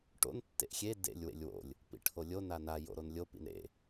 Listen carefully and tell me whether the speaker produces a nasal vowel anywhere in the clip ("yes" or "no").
no